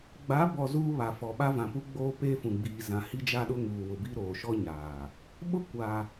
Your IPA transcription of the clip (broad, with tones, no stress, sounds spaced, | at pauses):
ɡ͡b a˨˦ b ɔ˨ z uː˦ β a˨ f ɔ˨ ɓ a˦ v ã˨ p u˦ ɡ͡b oː˦ p eː˦ f ũ˨ ɡ͡b iː˨ z ã˨ h i˦ d͡ʒ a˦ ɗ ʊ˦ ŋ uː˨ w ʊ˨ b i˦ ɾ oː˨ ʃ ɔ˦ ɲ aː˨ | ɓ ʊ˦˨ kʷ a˦